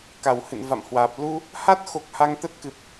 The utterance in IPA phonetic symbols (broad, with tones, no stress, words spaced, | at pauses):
ka˨˩whɨ̰˧˨nva̰˧˨mhwaː˨˩p̚ lu˧ | ha˦˥t̚xo˨˩k̚ ha˧ŋt̪ə˦˥t̚kɨ˨˩p̚